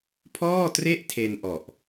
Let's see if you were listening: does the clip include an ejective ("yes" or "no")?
no